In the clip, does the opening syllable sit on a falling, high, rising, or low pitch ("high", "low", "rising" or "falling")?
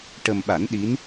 low